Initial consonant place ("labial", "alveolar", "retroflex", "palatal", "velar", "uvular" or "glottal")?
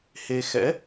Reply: glottal